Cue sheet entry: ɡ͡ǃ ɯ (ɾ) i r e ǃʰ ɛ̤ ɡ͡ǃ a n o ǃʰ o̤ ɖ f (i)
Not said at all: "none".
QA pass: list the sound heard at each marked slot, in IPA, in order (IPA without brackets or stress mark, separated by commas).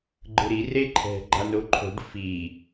ɾ, i